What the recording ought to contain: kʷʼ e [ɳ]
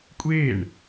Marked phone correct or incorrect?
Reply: correct